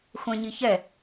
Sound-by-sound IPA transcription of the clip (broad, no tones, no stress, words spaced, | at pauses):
xʷɛ̃ɲi çɛ